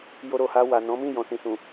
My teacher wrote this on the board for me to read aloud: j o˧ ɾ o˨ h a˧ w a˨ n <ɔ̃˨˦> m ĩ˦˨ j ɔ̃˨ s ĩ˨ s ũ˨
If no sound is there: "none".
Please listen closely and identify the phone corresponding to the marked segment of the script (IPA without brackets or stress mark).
ɔ̃˨˦